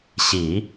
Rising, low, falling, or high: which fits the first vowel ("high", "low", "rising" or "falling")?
low